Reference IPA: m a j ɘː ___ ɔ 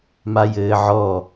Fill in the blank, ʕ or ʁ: ʕ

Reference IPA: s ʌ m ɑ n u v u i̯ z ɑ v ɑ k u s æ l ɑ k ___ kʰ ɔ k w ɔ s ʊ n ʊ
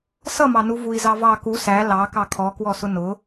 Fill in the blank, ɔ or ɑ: ɑ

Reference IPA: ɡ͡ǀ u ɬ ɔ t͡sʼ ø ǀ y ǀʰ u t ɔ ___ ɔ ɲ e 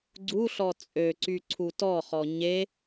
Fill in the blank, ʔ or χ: χ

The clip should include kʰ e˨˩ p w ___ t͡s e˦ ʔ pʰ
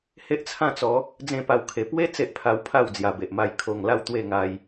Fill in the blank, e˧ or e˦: e˦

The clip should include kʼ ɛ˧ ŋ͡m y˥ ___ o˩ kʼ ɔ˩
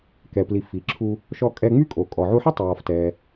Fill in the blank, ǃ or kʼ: kʼ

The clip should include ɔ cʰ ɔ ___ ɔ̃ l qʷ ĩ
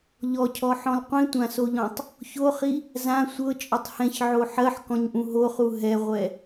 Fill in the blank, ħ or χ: ħ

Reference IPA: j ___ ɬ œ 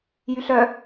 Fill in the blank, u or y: y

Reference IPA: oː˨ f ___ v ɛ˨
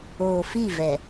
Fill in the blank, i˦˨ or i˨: i˦˨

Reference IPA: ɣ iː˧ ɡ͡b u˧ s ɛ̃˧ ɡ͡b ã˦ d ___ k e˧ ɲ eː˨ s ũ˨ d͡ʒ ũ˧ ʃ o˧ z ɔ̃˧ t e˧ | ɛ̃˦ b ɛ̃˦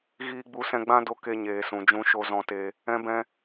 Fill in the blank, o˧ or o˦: o˧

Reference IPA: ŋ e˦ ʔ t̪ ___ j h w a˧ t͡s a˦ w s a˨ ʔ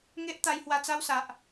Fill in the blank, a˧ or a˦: a˧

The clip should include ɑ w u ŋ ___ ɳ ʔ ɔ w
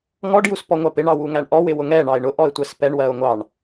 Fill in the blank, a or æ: æ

